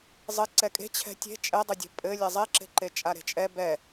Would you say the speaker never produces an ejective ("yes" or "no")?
no